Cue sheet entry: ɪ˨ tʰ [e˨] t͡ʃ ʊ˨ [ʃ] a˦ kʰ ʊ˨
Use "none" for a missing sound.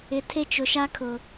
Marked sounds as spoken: e˦, ʃ

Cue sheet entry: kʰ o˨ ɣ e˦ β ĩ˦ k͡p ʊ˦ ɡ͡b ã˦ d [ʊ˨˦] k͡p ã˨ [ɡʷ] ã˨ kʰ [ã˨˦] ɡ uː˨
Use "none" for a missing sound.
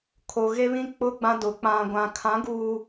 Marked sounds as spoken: ʊ˨˦, ɡʷ, ã˨˦

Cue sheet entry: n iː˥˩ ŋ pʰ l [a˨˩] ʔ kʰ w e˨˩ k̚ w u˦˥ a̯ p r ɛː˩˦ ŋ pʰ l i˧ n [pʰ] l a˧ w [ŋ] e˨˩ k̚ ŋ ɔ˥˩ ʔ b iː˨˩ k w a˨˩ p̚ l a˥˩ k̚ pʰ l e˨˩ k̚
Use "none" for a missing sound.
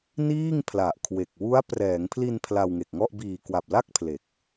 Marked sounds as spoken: a˨˩, pʰ, ŋ

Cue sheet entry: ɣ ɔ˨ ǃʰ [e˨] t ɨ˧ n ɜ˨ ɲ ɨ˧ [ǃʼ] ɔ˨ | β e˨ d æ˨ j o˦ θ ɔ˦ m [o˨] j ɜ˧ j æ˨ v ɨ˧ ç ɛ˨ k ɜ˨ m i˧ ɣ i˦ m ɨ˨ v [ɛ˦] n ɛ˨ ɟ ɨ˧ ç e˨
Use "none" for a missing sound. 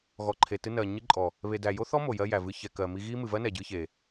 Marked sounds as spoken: e˨, ǃʼ, o˨, ɜ˦

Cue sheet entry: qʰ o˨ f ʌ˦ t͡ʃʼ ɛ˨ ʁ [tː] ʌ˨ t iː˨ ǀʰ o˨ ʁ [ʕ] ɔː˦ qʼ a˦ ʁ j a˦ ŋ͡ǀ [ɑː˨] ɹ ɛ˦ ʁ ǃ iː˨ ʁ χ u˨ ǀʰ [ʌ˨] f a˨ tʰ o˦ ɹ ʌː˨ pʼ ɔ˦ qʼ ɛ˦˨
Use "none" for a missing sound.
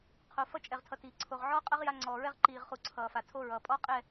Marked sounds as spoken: tʰ, ʕ, ɔː˨, ʌː˨

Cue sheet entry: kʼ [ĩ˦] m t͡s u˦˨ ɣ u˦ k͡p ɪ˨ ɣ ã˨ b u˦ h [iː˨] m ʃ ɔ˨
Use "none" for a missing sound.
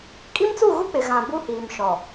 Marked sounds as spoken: i˦, iː˨

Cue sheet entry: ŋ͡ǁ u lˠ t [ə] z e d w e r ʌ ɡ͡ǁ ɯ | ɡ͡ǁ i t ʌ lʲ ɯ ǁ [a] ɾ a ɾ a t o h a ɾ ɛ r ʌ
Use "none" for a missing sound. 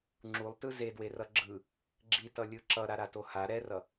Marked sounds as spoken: ɯ, ʌ

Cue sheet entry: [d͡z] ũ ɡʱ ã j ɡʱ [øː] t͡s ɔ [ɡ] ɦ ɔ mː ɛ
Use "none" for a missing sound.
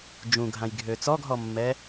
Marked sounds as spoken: d͡ʒ, øː, ɡ

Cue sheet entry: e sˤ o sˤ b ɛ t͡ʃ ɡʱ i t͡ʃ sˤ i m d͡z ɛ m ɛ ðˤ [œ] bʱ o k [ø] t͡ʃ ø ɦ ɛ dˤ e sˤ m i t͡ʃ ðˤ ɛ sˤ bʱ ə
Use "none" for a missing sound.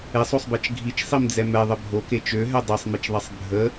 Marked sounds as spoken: ə, e

